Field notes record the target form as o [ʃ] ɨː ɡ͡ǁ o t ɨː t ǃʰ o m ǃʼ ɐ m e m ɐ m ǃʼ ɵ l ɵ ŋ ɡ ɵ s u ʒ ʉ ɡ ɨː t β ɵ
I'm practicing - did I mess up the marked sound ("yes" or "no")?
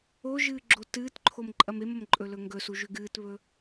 yes